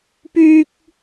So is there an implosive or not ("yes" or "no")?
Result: no